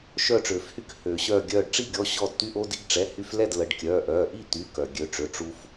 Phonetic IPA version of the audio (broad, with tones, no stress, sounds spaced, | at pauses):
ʃ œː˧˩ ʈ͡ʂ øː˩ f h y˧ k h ø˩ ɕ œː˧˩ ɡʲ œː˧˩ ɖ ʈ͡ʂ i˥˨ ɡʲ ɔ˩˧˩ ɕ ɔ˧˩ d t̪ y˧ ʔ oː˧ d i˧ ɡ ʈ͡ʂ ɛ˩˧˩ h y˧ f l ɛ˥˨ d l ə˩˧˩ ɖ kʲ œː˩˧˩ ʔ œː˩˧˩ ʔ i˥˨ t̪ y˩˧˩ k œ˩ ɡʲ ø˩˧˩ ʈ͡ʂ ø˩˧˩ ʈ͡ʂ u˧ f